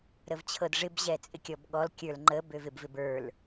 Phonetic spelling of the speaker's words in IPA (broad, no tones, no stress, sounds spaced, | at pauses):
ɾ ə v t͡ɕʰ ɤ d ʐ ɪ b ʑ ɛ t͡sʼ ɪ kʲ ɔ b ɠ ɔ l kʲ ə˞ l ŋ͡ǃ ə b ø v ɪ b v ɪ b ə˞ l